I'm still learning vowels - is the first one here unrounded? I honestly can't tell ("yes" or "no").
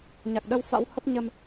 yes